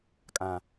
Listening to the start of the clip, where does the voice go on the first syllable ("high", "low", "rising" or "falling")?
low